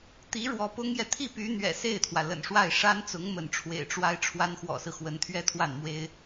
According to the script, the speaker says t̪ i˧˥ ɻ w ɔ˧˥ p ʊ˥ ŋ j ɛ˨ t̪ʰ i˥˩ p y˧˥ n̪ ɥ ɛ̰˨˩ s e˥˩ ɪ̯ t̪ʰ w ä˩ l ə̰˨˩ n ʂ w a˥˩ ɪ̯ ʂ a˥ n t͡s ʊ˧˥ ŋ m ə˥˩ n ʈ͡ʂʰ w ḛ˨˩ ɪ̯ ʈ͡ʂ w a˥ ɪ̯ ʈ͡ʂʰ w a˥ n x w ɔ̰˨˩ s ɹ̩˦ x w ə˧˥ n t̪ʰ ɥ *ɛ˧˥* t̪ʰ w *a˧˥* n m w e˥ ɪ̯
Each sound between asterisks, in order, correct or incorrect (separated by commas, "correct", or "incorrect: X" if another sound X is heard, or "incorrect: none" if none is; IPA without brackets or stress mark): incorrect: ɛ˥, incorrect: a˥˩